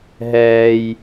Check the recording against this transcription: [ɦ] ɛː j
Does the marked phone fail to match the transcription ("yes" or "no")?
no